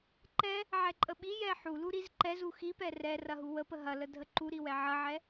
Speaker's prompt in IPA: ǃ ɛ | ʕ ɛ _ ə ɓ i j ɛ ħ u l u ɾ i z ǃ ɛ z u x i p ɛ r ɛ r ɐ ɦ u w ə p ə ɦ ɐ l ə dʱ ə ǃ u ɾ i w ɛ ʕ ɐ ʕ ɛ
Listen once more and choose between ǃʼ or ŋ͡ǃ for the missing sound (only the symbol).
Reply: ǃʼ